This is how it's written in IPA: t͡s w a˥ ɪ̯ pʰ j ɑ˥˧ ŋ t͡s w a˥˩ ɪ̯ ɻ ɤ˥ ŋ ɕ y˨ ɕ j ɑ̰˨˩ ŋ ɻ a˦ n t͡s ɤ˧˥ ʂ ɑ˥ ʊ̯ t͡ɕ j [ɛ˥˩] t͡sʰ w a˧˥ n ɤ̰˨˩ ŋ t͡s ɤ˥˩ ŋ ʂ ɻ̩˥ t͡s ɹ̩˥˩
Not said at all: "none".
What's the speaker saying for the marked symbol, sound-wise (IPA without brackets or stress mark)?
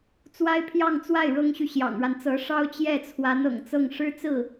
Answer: ɛ˥˩